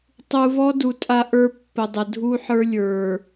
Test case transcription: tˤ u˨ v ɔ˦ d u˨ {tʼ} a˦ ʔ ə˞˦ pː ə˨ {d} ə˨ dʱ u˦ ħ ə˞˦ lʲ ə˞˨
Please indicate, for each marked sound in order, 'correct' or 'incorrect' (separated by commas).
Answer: correct, incorrect